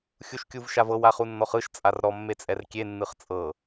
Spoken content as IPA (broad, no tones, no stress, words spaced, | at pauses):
xʲuʃkʲuvʃavɤw aχunːɔχɯʃ t͡sʼarɾɔ mːet͡sʼɛrkʲe nːɯχt͡sʼɤ